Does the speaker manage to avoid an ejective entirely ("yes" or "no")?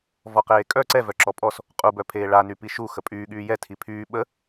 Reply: no